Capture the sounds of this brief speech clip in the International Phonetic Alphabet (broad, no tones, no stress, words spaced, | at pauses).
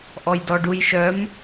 ʔɔjdɔɖujʃœm